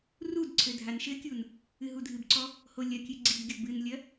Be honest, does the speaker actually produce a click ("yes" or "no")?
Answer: yes